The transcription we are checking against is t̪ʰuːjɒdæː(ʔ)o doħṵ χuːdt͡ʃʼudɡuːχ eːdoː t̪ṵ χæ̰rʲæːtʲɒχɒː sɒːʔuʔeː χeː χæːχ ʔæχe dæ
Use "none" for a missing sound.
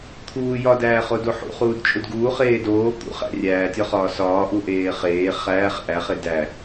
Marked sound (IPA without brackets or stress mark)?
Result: χ